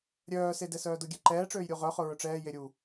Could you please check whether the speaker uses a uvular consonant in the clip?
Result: yes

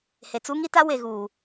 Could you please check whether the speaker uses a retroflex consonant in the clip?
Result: no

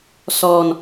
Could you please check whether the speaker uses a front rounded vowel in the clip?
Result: no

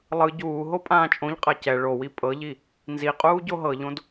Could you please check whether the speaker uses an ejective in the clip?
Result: yes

